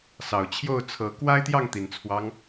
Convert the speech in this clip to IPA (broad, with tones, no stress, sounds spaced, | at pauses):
s ɑ˨˩ ʊ̯ t͡ɕʰ j o˥˨ ʊ̯ t͡sʰ ɤ˨˦ k w a˦ ɪ̯ t̪ j ɑ˥˨ ŋ t̪ i˨˩ n t͡sʰ w ɑ˦ ŋ